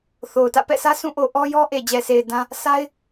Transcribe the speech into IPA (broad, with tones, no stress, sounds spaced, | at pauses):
θ o˨ ʊ̯ t ä̰˦˨ p ɛ̰˦˨ s ä˦ sʰ ũ˦˨ ʔ o˨ ʔ ɔ˦ j ɔ˦ ʔ e˨ d͡ʑ ɛ˨ sʰ e˨ ɪ̯ d ã˦ | sʰ a˦ ɪ̯